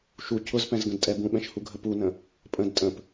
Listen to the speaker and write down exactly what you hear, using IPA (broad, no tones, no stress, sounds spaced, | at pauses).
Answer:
ʃ u cʰ ʊ z p ɛ̃ z ɡ ə̃ d tʼ ɛ b ũ ɓ ɛ̃ ʃ h u ɡʱ ə p u n ə̃ | pʼ ə̃ d tʼ ə̃ p